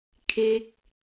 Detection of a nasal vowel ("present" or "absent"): absent